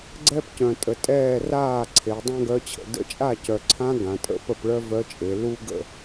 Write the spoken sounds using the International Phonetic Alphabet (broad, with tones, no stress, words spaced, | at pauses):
ɡ͡ǀɛ˥pcœ̃˨˩tʼə˩˧tʼɛː˥˩ raː˥˩ǀʰe˩˧ dˤã˥ɡœ˧˥t͡ɕʰə̰˩˧ də̰˥˩ t͡ʃʼa˥˩cœ˨˩ǀʰã˧˥ ɡã˩˧tʼə̰˧˥pə˥˩pɭœ˥ vœ˧˥t͡ʃʼe˩˧ lu˥ɡə̰˥˩